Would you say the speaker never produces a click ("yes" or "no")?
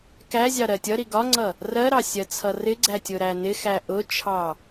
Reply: no